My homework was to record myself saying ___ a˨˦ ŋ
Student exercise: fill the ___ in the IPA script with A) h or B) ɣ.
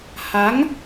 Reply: A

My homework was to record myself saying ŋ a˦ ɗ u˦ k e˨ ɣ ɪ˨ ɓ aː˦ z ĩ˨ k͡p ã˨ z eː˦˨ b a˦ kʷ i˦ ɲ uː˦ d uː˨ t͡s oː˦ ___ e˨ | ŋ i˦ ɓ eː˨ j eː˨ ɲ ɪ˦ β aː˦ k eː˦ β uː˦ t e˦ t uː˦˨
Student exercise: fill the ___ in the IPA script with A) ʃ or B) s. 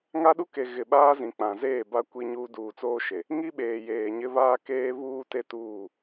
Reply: A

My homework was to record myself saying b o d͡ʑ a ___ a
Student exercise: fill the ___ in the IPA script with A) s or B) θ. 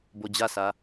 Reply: A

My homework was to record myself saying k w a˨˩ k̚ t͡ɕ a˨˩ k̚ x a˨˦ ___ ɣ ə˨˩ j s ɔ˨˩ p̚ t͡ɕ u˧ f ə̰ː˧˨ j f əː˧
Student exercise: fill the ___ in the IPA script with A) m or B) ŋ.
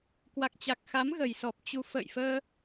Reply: A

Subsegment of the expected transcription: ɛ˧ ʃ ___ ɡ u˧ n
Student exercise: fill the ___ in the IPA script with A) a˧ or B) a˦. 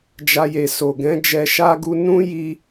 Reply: B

